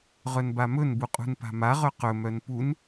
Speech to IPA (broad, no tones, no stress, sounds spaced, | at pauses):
ʁ œ n b a m ɵ n b u qʼ ṳ n p a̤ m a ʁ œ q ɵ m œ n p u n